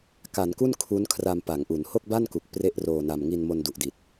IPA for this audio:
k a˩˦ n k u˥˩ n kʰ u˦˥ n kʰ r a˧ m p a˩˦ ŋ ʔ u˩˦ n h o˥˩ k̚ b a˥˩ n k u˨˩ k̚ p r e˥˩ ʔ r oː˧ n a˧ m ŋ i˧ n m o˧ n d u˨˩ ʔ d i˨˩ t̚

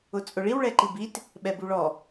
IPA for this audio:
ʊ t͡sʼ ʊ ɭ i w ɭ ɛ ǃ i b i t | ɓ ɛ b u ɭ ɔ

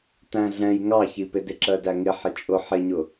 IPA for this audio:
t æ̃ ɮ ɛ̃ j ŋ ɑ ç i p ɪ d ɪ ǁ ɜ d æ ŋ ɪ ħ ɪ t͡ʃʼ ʊ ħ ɪ ɲ ʊ

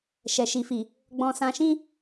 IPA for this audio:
ʃ ɛ˨ ʃ i˨ f i˨ | ɡ͡b ɔ̃˧ s ã˧ ʃ ĩ˦

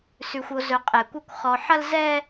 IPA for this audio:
s ʉ˨ xʷ o˨ z ɵ˨ qʼ ɛ˨ kʷ ɐ˦˨ kʷ χ ɔ˨ ħ ɐ˦ l z ɛ˦

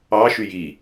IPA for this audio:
ɑ ʃ y j i

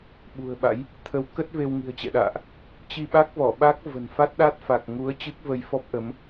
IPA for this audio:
ɓ ṳ˨˩ ə̯ ɓ a̰˧˥ j | t̪ʰ ə˨˦ w k ə˦˥ t̚ v e˧ w ŋ i̤˨˩ ə̯ t͡ɕ ɛ̰˧˨ ɗ a̰ː˧˨ ʔ | t͡ɕ i˧ ɓ a˦˥ k̚ v ɔ˧˩ ɓ a˦˥ k̚ v ə̤˨˩ n f a˦˥ t̚ ɗ a˦˥ t̚ f a˨˩ k̚ ŋ u˨˦ ə̯ t͡ɕ ɨ˦˥ k̚ v ə˧ j f ɔ˦˥ p̚ ʔ ə˨˦ m

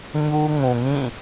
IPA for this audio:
ɲ u˦ ŋ ũ˨ ŋ ĩ˦˨

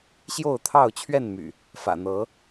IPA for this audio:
ɕ j o˥˨ ʊ̯ t̪ʰ ɑ˥˨ ʊ̯ t͡ɕʰ ɥ ɛ˥˨ n m y̰˨˩ | f ä̰˨˩ n̪ ɤ˨˦

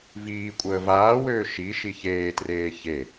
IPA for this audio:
v iː kʷʼ əː v aː w øː ʃ i ʃ i ç eː t r eː ç e

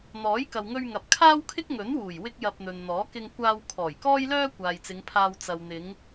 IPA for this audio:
n̪ ɔː˨˥ j k ɐ˨ w ŋ ɵ˧ ɥ ŋ ɐ˨ p̚ kʰ aː˥ w kʰ ɪ˥ k̚ ŋ ɵ˨˥ n w uː˨˩ j w ɪ˥ k̚ j ɐ˧ p̚ n̪ ɵ˨ n n̪ ɔː˨˥ k ɪ˧ ŋ kʷ aː˧ w kʰ ɔː˨˩ j k ɔː˥ j l œː˥ kʷ aː˨ j t͡s ɪ˨˧ ŋ pʰ aː˧ w t͡s ɐ˨ w n̪ ɪ˨˧ ŋ

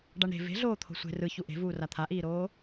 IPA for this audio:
ɖ a ɳ ɾ e̤ v e̤ ɮ oː t̪ʰ o̤ sʷ e̤ r ɯ ç u ʔ e̤ v uː r a t̪ʰ a ʔ iː ɾ oː

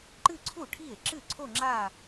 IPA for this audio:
ǃ ɨ˥˧ ǀʰ u˥˩ ʈʰ i˥˩ e̯ ǁ ɨ˥˩ ǀʰ o˥˧ ŋ͡ǁ a˥˧

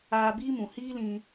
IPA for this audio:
aː˧ b iː˦ m ũ˨ h iː˦ l ĩ˧

